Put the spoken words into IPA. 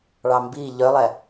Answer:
ɭ ɑ m b i ʎ œ lˠ ɛ

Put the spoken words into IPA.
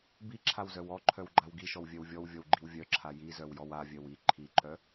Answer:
b i ǁʰ a w z œ w ɔ ǃʰ œ w ɡ͡ǃ a w ɡ i ʃ ɔ w vʲ œ w vʲ ɔ w vʲ ɔ w ɡ͡ǃ i w vʲ œ ǁʰ a j i z œ w j ɔ w a vʲ œ w i ǃʰ i ǃ œ

